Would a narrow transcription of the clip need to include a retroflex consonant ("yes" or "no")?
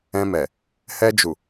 no